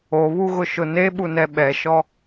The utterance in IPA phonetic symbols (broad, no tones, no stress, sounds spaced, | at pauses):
o β u ɣ ʊ ʃ ʊ n e ɓ u n ɛ ɓ ɛ ʃ ɔ